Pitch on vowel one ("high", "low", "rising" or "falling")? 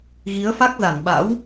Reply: rising